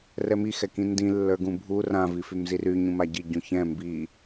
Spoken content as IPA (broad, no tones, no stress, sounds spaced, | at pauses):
r ɛ m i x ɛ k ĩ n d ĩ lː ə˞ ɡ ũ bʱ u r ã v i f y m z i r y ɲ ũ m a ɟ i ɟ ũ ç ɛ̃ m b i